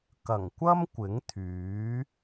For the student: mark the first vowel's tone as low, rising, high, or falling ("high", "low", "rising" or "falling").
low